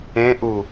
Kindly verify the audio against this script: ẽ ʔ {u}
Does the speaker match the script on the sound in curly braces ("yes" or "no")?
yes